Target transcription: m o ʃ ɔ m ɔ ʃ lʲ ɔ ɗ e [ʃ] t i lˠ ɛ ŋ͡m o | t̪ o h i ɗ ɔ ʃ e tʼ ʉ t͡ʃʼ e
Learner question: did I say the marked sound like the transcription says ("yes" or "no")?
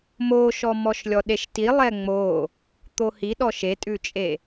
yes